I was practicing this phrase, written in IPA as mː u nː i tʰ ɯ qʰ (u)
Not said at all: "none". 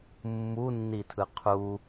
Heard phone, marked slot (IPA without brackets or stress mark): u